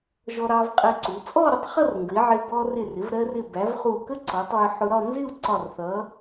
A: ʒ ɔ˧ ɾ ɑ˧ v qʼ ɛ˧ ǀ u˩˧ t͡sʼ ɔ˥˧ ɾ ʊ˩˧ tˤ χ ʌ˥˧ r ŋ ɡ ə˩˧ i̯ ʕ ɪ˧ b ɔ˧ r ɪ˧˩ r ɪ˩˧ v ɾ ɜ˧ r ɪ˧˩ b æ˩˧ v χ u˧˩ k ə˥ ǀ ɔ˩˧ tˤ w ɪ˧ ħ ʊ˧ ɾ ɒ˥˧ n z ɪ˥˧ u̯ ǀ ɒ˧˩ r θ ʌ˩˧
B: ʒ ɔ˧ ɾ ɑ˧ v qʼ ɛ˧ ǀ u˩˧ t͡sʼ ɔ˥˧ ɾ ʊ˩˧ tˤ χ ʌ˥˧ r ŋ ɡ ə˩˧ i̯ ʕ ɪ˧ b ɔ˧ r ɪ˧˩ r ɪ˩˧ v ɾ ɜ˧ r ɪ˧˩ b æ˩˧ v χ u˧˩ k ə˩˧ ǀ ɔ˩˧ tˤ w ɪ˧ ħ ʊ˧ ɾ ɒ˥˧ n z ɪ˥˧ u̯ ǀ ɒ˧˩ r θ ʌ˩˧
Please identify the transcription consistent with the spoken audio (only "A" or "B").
A